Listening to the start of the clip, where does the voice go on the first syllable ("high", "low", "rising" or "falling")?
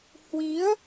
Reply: rising